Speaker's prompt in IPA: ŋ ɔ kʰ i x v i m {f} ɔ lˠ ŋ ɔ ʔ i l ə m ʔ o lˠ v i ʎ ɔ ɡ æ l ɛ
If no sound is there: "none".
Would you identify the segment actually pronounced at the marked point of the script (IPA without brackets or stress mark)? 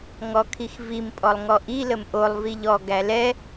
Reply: pʼ